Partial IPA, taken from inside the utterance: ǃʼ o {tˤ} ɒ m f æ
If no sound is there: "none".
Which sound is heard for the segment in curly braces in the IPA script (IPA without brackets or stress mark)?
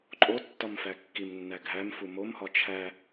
tː